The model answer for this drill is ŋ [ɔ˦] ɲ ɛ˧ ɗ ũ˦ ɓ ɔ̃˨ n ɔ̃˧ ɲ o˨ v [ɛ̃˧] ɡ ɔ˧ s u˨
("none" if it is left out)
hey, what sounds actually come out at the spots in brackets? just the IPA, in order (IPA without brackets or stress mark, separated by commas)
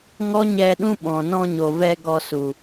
ɔ˦, ɛ˧